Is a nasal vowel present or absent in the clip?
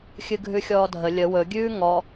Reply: absent